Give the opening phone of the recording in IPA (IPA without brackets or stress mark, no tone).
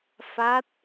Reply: f